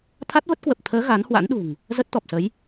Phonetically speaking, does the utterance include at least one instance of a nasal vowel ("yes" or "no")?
no